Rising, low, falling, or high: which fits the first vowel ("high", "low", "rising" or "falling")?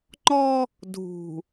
high